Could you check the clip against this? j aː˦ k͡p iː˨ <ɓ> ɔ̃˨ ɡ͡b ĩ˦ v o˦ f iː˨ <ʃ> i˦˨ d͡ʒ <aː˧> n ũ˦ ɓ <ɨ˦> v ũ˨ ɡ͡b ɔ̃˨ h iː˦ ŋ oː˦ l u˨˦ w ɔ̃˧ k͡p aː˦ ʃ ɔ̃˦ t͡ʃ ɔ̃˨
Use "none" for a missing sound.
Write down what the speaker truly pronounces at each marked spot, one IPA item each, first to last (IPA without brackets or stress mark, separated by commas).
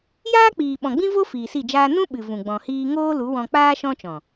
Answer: ɓ, s, aː˦, ɨ˨